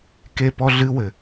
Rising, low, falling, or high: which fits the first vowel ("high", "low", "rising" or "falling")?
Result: high